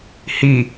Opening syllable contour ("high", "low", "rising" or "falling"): low